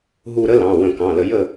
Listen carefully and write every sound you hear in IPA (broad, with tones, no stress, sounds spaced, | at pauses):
ɦ u˦˨ ɾ ə˥ l ɑ̃˩˧˩ w ə̃˧˩˧ k ɑ̃˩˧˩ l ə˧˩˧ j ə˦˨